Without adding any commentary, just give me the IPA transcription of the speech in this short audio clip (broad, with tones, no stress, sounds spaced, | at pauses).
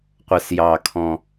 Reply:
qʷ ə˨˩ s j ɑ˨˩ kʰ ɔ̃˨˩